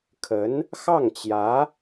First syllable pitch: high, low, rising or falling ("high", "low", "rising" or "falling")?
rising